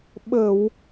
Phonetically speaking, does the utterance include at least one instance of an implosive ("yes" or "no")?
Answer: yes